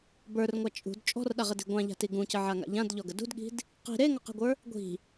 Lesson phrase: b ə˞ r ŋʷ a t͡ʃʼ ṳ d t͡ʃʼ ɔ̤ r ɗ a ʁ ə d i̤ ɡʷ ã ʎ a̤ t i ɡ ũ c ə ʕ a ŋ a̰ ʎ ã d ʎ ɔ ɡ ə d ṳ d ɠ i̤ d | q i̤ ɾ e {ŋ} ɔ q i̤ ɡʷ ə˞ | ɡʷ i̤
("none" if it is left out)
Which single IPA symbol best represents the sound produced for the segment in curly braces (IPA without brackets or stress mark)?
ŋ